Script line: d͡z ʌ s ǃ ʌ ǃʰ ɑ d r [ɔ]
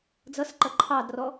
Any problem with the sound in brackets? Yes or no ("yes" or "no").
no